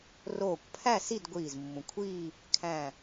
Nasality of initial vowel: oral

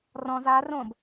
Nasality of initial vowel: nasal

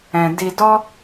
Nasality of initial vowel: nasal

